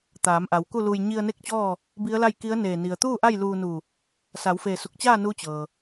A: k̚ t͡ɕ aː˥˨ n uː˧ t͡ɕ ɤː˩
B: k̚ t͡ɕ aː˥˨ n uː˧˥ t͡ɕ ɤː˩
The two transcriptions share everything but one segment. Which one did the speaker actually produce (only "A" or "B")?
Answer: B